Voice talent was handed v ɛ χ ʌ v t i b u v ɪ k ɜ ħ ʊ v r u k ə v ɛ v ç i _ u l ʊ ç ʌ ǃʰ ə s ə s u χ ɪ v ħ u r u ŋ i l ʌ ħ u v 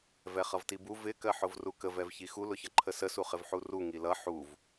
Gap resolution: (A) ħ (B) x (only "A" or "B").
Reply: B